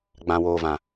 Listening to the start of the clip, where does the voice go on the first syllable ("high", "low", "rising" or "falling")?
low